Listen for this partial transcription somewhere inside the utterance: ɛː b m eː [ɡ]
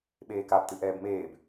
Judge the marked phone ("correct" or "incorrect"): incorrect